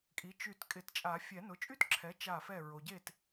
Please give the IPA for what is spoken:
kʼ i˩˥ t͡ʃ y˧˩ t kʼ ɪ˨˩˦ t t͡ʃʼ a˨˩˦ fʲ ɛ˨˩˦ n ʊ˩˥ t͡ʃʼ y˥˧ t ǁʰ ɛ˩˥ t͡ʃ a˧˩ f ɛ˧˩ ɹ o˩ ɟ e˧˩ t

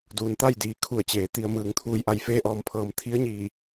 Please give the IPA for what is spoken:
d uː˩˧ n t̪ a˥˨ j d iː˩ kʰ u˧˩ ə̯ t͡ɕ eː˩˧ t̪ i˩ ə̯ m ɯː˩ ŋ t̪ʰ uː˧˩ j ʔ a˧˩ j f eː˧ ʔ ɔː˩ m pʰ ɤː˩ m t̪ʰ i˧˥ ə̯ ɲ iː˧˩

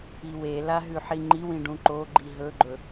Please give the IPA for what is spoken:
i w e l a ɦ ʉ ħ i ŋ͡ǃ i w ĩ ɖ ũ ǃ o ɡ͡ǃ i ɦ ɵ ɡ͡ǃ ɵ

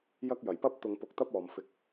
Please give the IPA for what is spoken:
j ɐ˥ k̚ j ɐ˨˩ j p ɐ˥ p̚ t̪ ʊ˧ ŋ p ʊ˧ k̚ t̪ ɐ˥ p̚ ɔː˨ m f ɪ˨˥ k̚

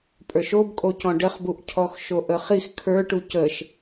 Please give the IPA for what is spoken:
pʼ ə˞ ʃ o b kʼ o c ɔ̃ ɖ ə χ b u ʔ cʰ ɔ x ʃ o ʔ ə χ i x kʰ ə˞ ʈ u c ə ʃ

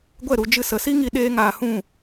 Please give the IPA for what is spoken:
ɡʷ ɛ˦˨ ɾ u˧ d͡ʒ ɨ˧ s ə˨˦ s i˦ ŋ i˧ ɗ eː˦ ŋ aː˧ h ũ˦˨

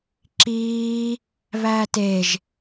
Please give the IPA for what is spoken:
ǁ iː | β æː t e ʒ

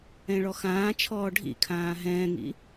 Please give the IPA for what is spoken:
ɛ̃ ɭ ɔ x ãː t͡ʃʰ ɔː ɖʱ ḭ kʰ ãː ɦ ɛ̃ː ŋ ḭ

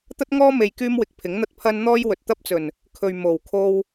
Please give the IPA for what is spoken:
t̪ ɐ˥ t̚ ŋ ɔː˥ m e˧ j k yː˥ m w ɪ˧ k̚ pʰ ɪ˨˥ ŋ n̪ ɐ˥ t̚ pʰ ɐ˧ n n̪ ɔː˥ j w ɵ˨ t̚ t̪ ɐ˥ p̚ t͡s ɵ˨˩ n | kʰ ɵ˨ ɥ m o˨˩ w kʰ o˧ w

